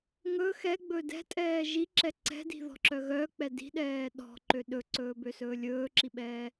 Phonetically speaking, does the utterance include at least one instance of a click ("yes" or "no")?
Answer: yes